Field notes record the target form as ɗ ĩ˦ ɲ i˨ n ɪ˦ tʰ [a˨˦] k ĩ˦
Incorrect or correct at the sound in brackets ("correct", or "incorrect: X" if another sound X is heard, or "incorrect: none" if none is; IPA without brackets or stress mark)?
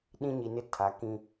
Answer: correct